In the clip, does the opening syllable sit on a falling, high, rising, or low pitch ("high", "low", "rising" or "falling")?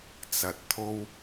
low